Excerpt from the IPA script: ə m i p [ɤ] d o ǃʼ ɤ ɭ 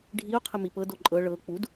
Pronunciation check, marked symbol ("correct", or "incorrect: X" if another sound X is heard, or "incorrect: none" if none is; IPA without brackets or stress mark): correct